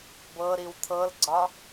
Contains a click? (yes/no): yes